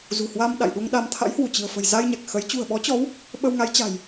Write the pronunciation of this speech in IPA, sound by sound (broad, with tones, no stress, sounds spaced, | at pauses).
z ṳ˨˩ h w a˧ m ɗ a̰˧˨ j ɗ u˧ ŋ ɗ a˧ m t̪ʰ a̰˧˥ j h w u˧˩ t͡ɕ ɨ̤˨˩ ə̯ f ə̤˨˩ j z a˧ j ɲ a˨˩ k̚ x ə˨˦ j t͡ɕ ṳ˨˩ ə̯ ɓ ɔ˨˦ t͡ɕ ɔ˨˦ w | ɓ ə˧ w ŋ a˨˦ j t͡ɕ a̤˨˩ j